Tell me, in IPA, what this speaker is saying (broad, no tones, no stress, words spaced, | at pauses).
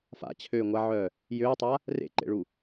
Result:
fa̰t͡ɕʰøːŋʷaʕœː | jøːtˤa | rḛǃḛɭu